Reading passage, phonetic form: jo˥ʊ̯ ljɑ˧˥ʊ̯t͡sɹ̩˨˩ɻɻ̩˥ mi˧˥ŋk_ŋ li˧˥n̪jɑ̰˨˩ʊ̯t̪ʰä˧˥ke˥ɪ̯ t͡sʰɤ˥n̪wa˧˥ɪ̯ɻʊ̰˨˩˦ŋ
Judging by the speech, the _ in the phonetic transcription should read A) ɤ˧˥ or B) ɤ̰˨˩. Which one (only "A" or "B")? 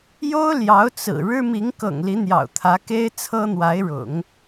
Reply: B